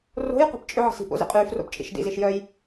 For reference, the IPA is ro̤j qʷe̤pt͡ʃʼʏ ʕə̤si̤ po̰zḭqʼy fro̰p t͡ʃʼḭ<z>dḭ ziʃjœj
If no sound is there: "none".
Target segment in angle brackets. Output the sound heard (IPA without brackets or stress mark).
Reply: ʃ